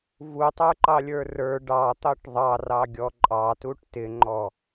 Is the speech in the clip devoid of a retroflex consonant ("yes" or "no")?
no